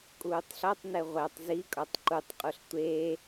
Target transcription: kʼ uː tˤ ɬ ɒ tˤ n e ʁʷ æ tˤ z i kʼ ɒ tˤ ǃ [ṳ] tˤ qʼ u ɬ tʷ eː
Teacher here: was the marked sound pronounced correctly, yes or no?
no